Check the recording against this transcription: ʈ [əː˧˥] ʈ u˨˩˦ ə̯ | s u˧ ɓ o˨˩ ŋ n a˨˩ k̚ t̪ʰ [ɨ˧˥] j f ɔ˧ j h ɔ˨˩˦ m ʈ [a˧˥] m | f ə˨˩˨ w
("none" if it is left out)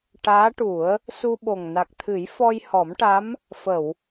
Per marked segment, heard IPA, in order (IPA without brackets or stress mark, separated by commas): aː˧˥, ɨ˨˩˦, a˧˥